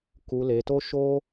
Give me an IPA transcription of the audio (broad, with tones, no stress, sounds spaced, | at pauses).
k u˧ l e˧ t o˦ ʃ o˦